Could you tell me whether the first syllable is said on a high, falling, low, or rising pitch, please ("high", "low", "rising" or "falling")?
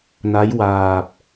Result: rising